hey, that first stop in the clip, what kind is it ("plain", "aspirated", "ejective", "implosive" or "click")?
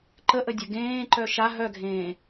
click